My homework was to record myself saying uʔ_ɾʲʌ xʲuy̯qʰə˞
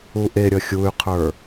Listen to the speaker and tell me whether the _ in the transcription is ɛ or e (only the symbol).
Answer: e